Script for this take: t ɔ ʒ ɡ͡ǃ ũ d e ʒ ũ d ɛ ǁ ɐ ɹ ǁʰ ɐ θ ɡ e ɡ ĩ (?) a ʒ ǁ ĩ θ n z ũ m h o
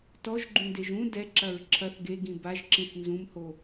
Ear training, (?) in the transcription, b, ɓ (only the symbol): b